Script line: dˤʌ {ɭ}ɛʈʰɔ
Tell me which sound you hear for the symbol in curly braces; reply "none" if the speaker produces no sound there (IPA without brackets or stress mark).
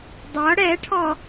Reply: ɽ